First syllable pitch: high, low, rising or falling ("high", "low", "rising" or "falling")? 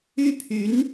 high